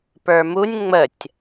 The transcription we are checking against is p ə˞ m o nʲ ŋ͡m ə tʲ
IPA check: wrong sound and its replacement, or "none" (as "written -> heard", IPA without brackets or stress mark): o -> u